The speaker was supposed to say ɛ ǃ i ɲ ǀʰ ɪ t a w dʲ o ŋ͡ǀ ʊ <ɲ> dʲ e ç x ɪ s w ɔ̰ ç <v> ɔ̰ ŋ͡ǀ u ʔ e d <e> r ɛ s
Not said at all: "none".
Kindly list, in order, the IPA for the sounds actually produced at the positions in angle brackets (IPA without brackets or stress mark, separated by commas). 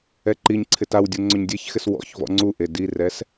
ɲ, v, i